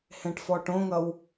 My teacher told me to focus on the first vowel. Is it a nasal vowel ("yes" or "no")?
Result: yes